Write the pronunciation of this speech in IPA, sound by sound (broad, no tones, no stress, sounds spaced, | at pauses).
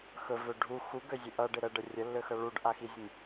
x ɵ v ø ɖʱ u x u ɡ ø zʲ ø ʔ ʌ ɖ ɪ ɾ ə ɖ ə rʲ ə lː ø x ʌ ɭ u ɖ ʔ a x i zʲ ə nʲ